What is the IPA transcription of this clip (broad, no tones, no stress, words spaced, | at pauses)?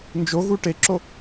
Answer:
nd͡ʒoɣu ʈeǁo